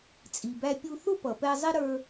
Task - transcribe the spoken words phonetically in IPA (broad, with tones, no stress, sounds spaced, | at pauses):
t͡sʼ i˩ b æ˧ pʲ u˧ θ ʊ˥ p ʌ˩ p ɛ˧ zˤ ɪ˥ ɾ ə˞˧